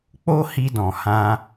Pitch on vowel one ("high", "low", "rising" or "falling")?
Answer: high